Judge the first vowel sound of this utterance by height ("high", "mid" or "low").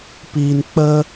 high